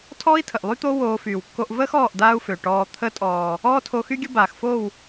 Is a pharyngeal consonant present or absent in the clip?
absent